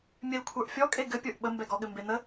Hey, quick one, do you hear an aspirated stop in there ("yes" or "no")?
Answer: yes